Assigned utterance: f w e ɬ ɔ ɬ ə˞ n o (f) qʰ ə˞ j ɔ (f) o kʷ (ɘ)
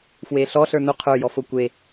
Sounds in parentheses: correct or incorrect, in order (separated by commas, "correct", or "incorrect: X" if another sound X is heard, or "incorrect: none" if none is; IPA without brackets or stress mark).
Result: incorrect: none, correct, incorrect: e